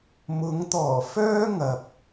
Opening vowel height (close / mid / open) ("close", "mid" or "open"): close